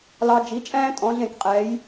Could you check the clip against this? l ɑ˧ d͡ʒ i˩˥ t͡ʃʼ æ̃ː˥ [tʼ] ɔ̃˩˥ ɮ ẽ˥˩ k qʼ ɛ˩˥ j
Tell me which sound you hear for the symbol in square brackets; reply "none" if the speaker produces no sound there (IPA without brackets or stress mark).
tʼ